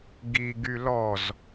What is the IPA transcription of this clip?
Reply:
ɡ i ɡ y l ɔ z

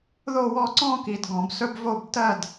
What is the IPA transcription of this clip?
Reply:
ð o˥˨ w ɔ˥˨ ǀ ɔ̃˥˨ k i˨ d ɡ ɔ̃˨˩˦ b s ɵ˥ b v o˥˨ b t ɜ˥˨ d

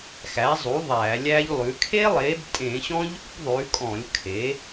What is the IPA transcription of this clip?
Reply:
x æ˩˥ zˤ u˩˥ ðˤ æː˧˩˧ lʲ æ˦˥ ʎ lˠ ʉ˩˥ kʰ e˦˥ lˠ e˩˥ b tʼ ẽ˧˩˧ ɕ ɔ̃˦˥ ʎ ṵ˦˥ b ðˤ ʉ˩˥ kʼ ɔ̃˧˩˧ lʲ kʰ e˩˥

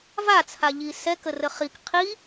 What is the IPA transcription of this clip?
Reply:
v a t͡sʰ a ʎ i s ɛ k ə r ə χ i k qʰ i

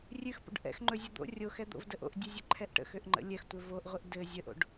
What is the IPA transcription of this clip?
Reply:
rʲ ʉ x p o̰ ɖ ʔ ɛ̰ x ŋ͡ǃ ɵ zʲ ɵ d̪ o̰ rʲ o x ɛ d̪ o̰ v d ə ʔ o̰ ʔ dʲ ʉ zʲ ɵ ǃʰ ɛ ʔ ʈ ə̰ x ø ʔ ŋ͡ǃ ə̰ lʲ ɛ x tʷ ɘ v o ʔ ʁʷ ɘ ʔ d ɘ zʲ ə ʔ o̰ ɖ

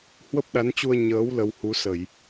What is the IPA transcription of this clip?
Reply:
h w ə˦˥ p̚ ɗ a˨˦ n t͡ɕ u˧ ə̯ ɲ əː˨˦ w l ə˧ w h u˨˦ s ə˧˩˨ j

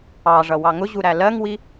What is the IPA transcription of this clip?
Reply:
ɑ ʐ ʌ w ɑ ŋ ʊ ʑ u ɾ æ l ɜ ŋ w i

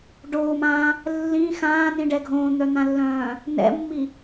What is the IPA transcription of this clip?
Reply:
ɖ oː m ãː | lː ĩ x ãː n ĩ ɖ ɛ ɡʱ õː n̪ œ n̪ ã lː œ̃ː | n ɛ̰ mː i

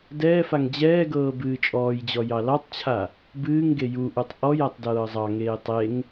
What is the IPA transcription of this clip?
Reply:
d ɛː f a ŋ d͡ʑ ɛː ɡ ɤː b ɨː t͡ʃʼ ɔː j d͡ʑ ɔ j ɑ l ɑ tˤ t͡ɕʰ a | b ɨː ŋ ɡ e j u ʔ u tˤ ʔ ɔ j a tˤ d ɤː zˤ ɑ ŋ eː tˤ e ŋ

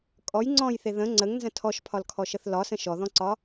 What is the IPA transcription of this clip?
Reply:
kʼ ɔ j ŋ͡ǀ ɔ̃ j θ e ð ə̃ ŋ͡ǀ ə ŋ n z ə̃ tʰ ɔ ʃ pʰ ɒ l kʰ ɔ ʃ ə θ l ɒ s ə̃ ʃ ɔ ð ɔ̃ ǀ ɒ

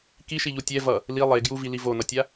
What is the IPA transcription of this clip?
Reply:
k i ʃ i ʎ u tʲ ɛ v ʌ | l i lˠ e ɡ j u v i l i v o n ʌ tʲ a

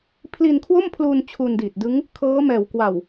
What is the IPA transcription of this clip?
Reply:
pʰ l i˧ n kʰ w o˥˩ m pʰ l uː˧ n t͡ɕʰ u˧ n d iː˨˩ t̚ d ɯ˦˥ ŋ | kʰ ɤː˦˥ m ɛː˨˩ w k w a˨˩ w

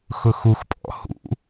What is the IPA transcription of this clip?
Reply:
x ʊ x u x pʼ ɔ̰ h ṵ

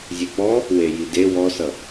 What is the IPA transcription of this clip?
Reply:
zʲ e k͡p ɔ | w e j i d e w ɔ s ʌ

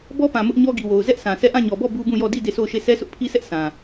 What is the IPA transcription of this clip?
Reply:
b ɔ˦ p ã˨ m ʊ˦ ʔ ɲ ɔ˦ ɡ i˨ w o˨ ʊ̯ z ɛ˦ ʔ s ã˨ s ɛ˦˨ ʔ ã˦˨ ɲ ɔ˨ b ɔ˦˨ b u˦ b ũ˦˨ j ɔ˦˨ d i˦˨ d e˦˨ sʰ o˦˨ ʊ̯ ʃ e˦˨ sʰ ɛ˦ sʰ ʊ˦ ʔ pʰ i˦ sʰ ɛ˦ ʔ s ã˨

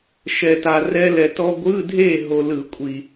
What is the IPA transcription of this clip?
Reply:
ʃ ɛ˧ t a˧ r ɛ˥ l ɛ˧ t ɔ˥ ɡʷ ɯ˧˥˧ dʱ e˥˨ ɦ o˧ l ɯ˧˩˧ kʷʼ i˨˩

